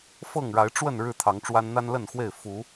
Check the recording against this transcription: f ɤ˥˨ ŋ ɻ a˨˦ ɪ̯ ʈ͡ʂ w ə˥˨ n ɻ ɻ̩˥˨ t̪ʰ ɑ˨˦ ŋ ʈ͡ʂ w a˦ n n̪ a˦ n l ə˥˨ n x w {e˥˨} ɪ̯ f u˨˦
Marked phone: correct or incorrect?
correct